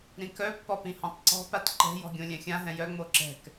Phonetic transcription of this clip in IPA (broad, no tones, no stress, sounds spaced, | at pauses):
ɾ ĩ k œ pː ɔ p ĩ h ɔ̃ tˤ ǀ ɔ̤ p a t ǃ ɛ̤ j ɔ̤ ɡʲ õ lʲ ɛ̃ xʲ ã ɦ ɛ̃ j œ ŋ͡m o ǁ ɛ̤ k